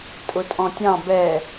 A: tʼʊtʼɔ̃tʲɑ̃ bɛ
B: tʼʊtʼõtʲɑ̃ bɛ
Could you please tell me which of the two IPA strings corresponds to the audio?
A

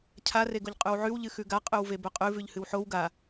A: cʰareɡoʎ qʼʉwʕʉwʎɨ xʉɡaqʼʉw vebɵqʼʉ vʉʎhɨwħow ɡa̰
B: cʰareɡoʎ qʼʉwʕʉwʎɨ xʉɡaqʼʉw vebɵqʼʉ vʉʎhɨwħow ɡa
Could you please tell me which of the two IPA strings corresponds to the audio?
B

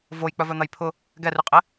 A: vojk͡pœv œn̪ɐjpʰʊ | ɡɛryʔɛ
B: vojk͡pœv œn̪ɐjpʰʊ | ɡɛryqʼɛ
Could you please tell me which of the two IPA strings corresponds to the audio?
B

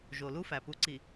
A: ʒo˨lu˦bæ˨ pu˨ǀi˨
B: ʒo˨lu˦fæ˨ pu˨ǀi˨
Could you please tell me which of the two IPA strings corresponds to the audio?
B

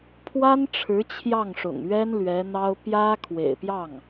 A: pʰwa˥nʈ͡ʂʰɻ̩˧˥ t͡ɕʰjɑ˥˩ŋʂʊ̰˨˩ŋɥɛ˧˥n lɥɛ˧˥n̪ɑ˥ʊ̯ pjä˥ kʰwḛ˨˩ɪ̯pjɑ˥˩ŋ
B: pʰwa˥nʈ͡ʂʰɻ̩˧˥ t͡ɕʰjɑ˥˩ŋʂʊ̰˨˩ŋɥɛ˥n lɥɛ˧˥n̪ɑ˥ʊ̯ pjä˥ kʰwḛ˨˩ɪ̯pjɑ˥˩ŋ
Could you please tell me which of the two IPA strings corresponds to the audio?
B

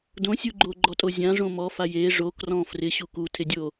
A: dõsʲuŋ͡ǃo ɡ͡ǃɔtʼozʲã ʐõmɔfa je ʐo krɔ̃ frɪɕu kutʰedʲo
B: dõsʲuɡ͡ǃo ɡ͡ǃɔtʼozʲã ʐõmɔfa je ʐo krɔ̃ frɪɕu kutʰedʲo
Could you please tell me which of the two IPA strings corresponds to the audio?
B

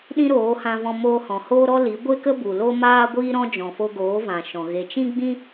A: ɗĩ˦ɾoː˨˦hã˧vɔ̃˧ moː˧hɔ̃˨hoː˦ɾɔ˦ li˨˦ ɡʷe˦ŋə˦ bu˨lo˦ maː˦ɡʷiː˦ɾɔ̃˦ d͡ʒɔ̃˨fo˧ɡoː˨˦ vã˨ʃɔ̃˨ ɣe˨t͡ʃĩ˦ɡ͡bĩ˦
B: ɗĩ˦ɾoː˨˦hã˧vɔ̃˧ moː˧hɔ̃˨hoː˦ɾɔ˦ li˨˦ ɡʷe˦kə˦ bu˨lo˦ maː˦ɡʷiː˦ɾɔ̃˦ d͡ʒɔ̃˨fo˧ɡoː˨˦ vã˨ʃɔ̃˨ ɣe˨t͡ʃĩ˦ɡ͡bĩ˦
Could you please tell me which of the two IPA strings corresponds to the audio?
B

